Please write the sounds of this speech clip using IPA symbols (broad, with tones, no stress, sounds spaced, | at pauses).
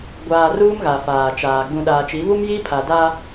ɡʷ aː˨ r uː˦ m ɣ a˨ f aː˨ t͡ʃ aː˨ ɡ͡b ũ˨ ɗ aː˨ t͡ʃ i˨˦ β u˦ m j i˦ pʰ a˨ d a˦